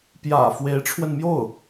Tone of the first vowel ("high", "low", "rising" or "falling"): low